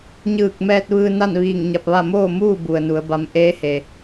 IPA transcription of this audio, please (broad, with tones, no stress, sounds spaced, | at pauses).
ɲ ɯː˧˩ k̚ m ɛː˧ t̚ ʋ ɯː˧ n a˥˨ n ʋ iː˧˩ ŋ ɲ a˧ p̚ ʋ a˥˨ m oː˥˨ m uː˥˨ b u˩ ə̯ n u˩˧ ə̯ b a˧˥ m ʔ eː˧˥ h e˩